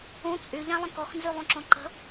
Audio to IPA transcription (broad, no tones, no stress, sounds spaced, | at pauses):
ũ t͡sʼ y ʎ ã lˠ ə̃ k ɔ x n z y lˠ ũ ǁ õ ǃ ə̤